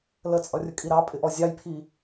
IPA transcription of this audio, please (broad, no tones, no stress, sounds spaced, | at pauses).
l ə t͡sʼ ʌ rʲ ə kʼ i ɾ ɑ pʼ ɪ ʔ ɔ zʲ ɑ j pʰ i